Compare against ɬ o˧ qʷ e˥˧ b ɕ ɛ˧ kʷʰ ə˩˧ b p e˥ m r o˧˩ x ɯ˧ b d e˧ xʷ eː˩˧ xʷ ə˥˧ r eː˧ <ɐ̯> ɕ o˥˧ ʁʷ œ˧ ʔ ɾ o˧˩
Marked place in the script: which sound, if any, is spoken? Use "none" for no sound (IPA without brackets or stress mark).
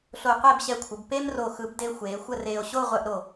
o̯